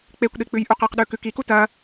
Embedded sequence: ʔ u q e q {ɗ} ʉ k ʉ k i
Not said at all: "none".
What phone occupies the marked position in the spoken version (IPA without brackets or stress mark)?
ɗ